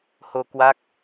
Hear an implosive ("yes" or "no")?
no